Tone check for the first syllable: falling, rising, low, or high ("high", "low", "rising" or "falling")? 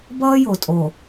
high